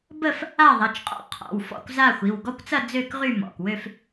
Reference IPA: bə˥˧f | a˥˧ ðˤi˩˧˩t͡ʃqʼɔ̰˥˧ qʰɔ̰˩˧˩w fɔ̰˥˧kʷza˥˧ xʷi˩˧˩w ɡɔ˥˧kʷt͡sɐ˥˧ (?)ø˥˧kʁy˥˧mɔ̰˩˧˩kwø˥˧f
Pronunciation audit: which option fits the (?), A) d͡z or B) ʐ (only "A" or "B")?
A